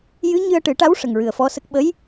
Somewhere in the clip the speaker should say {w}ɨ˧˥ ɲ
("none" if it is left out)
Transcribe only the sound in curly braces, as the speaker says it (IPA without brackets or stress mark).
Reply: j